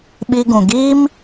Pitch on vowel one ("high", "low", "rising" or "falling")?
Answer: high